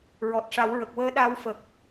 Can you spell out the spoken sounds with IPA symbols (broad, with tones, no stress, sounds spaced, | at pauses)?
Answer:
ɹ ɔ˨˩ t̚ ʂ a˨˩˦ w ɹ ə˨˩ k̚ w əː˧˥ ɗ a˧ w f ə˨˩ k̚